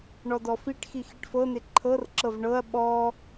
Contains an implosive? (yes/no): yes